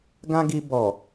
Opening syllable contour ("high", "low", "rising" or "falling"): high